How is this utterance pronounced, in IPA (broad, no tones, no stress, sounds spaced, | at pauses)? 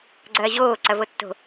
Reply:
ɡ͡ǀ ɐː ʑ oː ǀ ɐ v o tː o̤